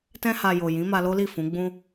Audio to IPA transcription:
t ɛ̃˧ h a˨ j o˨ j ĩ˨˦ m a˧ l o˦ l i˦˨ f ũ˨˦ ɡ͡b ũ˧

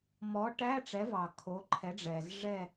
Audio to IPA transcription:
m ɔ˩˥ ʈ æ˧˥˧ ʈ͡ʂ ɛ˩˥ v ɑ˩ kʰ o˩˥ ǃʰ ɛ˩˥ ɖ͡ʐ ɛː˩ z ʐ ɛ˦˨

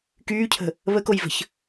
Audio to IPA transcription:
k yː cʰ ə̤ | β ə k o j v ə̤ ç

